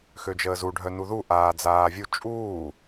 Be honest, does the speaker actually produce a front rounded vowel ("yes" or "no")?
yes